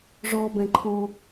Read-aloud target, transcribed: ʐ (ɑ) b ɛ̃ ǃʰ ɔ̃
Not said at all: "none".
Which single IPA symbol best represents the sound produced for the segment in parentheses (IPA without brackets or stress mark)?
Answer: ɔ